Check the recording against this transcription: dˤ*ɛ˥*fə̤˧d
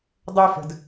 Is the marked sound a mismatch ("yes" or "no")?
no